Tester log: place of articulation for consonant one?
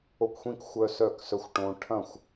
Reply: velar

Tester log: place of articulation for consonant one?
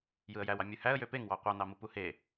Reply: palatal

